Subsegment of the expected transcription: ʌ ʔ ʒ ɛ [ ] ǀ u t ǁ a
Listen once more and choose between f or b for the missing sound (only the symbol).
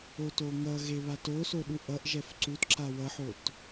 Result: f